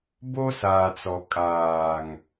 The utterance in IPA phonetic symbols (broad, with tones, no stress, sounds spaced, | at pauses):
b o˦ s aː˨ t͡s ɔ˨ kʼ aː˨ ŋ